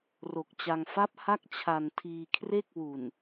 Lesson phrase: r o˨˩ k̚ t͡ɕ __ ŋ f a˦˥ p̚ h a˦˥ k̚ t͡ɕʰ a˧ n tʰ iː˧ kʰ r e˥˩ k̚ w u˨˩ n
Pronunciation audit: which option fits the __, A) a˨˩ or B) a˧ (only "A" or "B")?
B